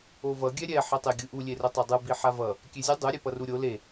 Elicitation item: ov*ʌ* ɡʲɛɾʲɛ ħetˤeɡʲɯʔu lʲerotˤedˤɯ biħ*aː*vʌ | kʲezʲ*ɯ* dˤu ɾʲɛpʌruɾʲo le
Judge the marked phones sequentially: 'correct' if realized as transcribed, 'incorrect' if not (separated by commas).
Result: correct, incorrect, correct